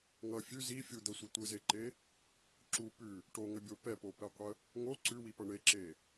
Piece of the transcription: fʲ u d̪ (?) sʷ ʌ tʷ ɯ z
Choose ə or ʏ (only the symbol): ə